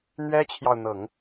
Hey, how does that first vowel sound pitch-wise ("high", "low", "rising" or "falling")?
high